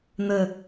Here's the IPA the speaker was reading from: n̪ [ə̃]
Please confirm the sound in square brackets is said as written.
no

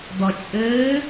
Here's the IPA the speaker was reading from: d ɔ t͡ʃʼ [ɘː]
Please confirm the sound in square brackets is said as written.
yes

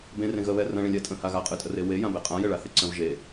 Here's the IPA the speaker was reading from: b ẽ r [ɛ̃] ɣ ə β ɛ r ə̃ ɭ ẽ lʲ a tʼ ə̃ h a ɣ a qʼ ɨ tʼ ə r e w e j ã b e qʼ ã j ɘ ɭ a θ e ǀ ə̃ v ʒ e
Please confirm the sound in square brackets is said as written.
no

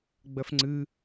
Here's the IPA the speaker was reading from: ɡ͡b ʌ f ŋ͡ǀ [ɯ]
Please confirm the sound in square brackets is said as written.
yes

